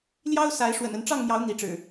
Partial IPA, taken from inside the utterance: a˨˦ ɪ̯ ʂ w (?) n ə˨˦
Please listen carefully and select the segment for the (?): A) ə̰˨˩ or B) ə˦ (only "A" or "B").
A